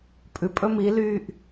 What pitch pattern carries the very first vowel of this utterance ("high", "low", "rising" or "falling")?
low